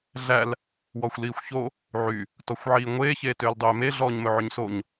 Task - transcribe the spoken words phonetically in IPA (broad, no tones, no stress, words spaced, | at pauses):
ɮæl | wɔxʷliːxʷço | ʕy | tɔxʷʕiːŋʷeː çeːtøːldˤøːme ɮɔːɲmɵʕøɲsoɲ